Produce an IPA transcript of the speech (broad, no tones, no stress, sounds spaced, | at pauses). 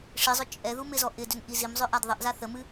ʂ i zˤ ʏ t͡ʃʼ ɛ ð u m ɪ z ɔ ʔ ɪ d ʏ n ʔ i z i m zˤ ʏ ʔ a d ðˤ ɪ ʔ z a θ ə m ɨ